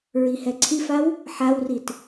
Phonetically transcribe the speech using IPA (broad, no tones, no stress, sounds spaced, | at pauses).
ɹ i h ɛ ǀʰ i f a w | ħ a w r i t